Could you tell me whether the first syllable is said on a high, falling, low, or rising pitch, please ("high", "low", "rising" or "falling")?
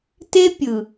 high